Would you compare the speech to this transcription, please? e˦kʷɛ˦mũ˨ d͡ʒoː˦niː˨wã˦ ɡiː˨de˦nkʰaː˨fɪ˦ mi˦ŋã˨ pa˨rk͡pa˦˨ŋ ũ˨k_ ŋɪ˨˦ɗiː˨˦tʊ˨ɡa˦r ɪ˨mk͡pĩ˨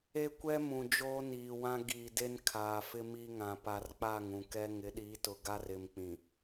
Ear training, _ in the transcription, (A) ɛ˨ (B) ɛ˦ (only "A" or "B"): B